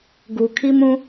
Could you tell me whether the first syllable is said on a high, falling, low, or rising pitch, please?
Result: low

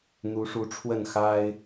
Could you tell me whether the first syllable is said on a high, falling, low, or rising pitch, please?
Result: rising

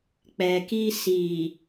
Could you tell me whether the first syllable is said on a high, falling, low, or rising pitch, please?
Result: low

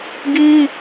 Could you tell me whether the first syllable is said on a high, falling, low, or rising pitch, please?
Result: high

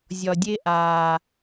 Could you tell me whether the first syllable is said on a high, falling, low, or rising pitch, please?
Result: low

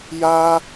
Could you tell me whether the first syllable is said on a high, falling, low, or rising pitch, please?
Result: high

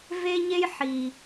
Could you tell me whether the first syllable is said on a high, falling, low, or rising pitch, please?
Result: high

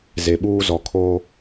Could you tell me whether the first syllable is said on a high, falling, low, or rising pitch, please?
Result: low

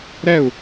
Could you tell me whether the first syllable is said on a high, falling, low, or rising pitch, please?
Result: falling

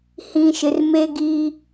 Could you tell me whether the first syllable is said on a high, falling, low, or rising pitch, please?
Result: low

